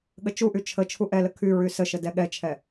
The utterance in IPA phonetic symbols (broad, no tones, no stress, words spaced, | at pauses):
ɠət͡ʃuʔy t͡ʃʰə t͡ʃʰuʔɛlə kʰy ɹysəʃə dɛɠɛt͡ʃʰɛ